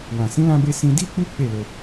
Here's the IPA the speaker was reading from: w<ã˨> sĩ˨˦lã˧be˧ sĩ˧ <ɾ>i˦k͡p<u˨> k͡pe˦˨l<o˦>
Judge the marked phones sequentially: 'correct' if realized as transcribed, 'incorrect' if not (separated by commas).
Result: correct, incorrect, incorrect, incorrect